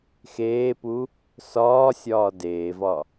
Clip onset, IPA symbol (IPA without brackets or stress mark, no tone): x